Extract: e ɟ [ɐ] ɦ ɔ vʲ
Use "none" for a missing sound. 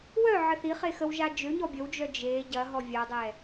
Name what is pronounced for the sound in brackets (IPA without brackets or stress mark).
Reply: ɐ